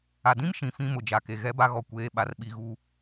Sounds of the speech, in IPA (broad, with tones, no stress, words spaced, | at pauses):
a˨ dĩ˦m ʃĩ˨˦ fĩ˦mʊ˨d͡ʒa˨ke˨ ɣɛ˦ba˦ɣɔ˨ kʷeː˦ ɓa˨rɓi˨ɣu˨